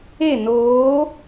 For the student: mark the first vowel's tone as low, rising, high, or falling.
falling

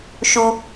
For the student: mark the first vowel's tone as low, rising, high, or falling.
low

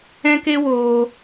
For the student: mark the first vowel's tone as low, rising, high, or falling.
high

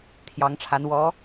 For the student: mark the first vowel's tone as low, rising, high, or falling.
rising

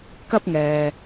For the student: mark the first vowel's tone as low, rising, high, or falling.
high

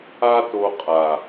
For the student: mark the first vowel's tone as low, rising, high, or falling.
high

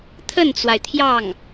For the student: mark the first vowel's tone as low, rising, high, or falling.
falling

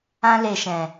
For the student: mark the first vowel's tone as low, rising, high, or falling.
high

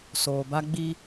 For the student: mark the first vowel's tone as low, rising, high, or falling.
low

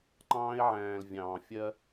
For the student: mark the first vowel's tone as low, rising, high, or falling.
high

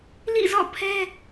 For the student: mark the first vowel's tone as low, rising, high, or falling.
falling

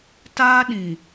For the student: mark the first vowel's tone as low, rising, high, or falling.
high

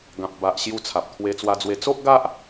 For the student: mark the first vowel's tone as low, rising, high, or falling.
low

